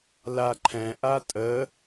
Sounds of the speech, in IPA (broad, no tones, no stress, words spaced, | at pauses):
laǃʰɛ̃ ʔatʼə